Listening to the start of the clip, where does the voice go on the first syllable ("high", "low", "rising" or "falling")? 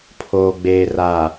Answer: low